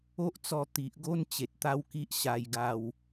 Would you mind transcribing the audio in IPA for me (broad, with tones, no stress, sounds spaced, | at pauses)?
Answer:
o˦ ʔ t͡s ɔ˧ t̪ i˨ ʔ ɡ o˦ n t͡ɕ e˨ t̚ t̪ a˦ w k i˦ ʔ ɕ a˧ j ɡ a˥˧ w